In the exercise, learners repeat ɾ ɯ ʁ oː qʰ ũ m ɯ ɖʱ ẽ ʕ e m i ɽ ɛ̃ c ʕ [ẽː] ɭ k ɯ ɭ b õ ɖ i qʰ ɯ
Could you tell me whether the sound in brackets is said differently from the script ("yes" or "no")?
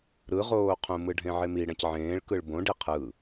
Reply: no